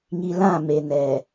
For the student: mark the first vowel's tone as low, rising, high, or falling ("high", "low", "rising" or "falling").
low